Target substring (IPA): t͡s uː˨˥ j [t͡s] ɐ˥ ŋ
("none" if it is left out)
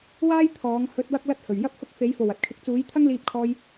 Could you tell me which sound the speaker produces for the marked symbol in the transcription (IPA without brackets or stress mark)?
t̪ʰ